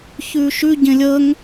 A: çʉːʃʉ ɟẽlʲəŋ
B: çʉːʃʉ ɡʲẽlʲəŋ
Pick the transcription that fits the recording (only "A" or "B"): A